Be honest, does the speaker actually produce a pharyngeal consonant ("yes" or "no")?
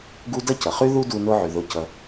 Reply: yes